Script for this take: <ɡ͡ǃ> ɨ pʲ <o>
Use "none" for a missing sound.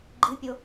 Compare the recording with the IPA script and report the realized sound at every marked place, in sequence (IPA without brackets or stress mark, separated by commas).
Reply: ɡ͡ǃ, o